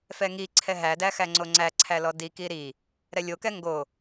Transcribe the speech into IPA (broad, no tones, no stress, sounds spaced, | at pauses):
f ɛ ŋ i ǀʰ ɛ ɦ æ d æ x æ ŋ͡ǀ o ŋ͡ǀ æ ǀʰ æ l ɔ d i k i ɾ i | ɾ ɛ lʲ o k ɛ ŋ ɡ o